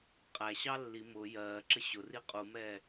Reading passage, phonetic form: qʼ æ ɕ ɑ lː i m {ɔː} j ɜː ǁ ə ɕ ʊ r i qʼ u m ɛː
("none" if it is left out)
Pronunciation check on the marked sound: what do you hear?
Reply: ʊː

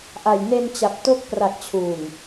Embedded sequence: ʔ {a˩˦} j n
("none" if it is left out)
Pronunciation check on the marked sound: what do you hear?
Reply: a˨˩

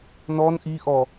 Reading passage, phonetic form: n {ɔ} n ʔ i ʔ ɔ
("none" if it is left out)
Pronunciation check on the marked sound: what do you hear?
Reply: ɔ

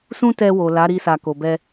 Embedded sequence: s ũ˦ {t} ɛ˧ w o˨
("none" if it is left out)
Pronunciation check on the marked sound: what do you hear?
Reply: t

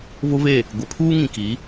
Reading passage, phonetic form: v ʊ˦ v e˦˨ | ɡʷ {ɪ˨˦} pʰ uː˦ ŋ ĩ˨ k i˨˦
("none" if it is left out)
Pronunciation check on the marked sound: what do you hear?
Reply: ɪ˨˦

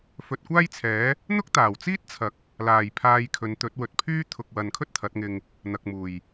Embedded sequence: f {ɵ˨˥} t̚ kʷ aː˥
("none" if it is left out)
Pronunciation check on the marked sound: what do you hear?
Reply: ɵ˨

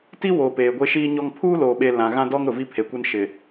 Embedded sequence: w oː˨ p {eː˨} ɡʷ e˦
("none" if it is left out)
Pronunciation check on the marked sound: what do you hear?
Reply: eː˨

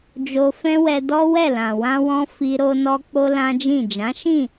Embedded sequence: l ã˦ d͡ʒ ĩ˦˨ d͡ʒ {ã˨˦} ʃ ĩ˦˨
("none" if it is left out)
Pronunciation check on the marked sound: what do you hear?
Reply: ã˨˦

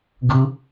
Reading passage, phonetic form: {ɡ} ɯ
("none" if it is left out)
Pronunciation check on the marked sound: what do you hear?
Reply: ɡ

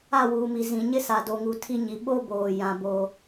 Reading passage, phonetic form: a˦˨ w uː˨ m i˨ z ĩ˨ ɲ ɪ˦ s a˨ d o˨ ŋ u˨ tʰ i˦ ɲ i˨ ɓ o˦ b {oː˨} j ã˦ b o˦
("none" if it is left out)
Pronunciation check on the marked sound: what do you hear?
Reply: oː˨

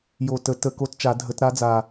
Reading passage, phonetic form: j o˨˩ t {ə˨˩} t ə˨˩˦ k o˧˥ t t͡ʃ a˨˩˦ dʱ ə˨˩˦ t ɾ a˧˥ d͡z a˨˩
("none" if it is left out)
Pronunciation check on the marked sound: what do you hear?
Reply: ə˨˩˦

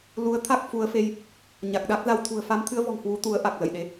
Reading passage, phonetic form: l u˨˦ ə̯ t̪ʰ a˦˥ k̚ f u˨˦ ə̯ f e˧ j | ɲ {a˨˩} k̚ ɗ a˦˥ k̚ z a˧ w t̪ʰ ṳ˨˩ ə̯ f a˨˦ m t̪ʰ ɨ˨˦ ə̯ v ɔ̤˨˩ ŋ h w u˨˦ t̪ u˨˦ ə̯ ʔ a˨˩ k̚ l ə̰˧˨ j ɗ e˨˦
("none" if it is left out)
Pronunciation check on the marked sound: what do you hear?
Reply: a˨˩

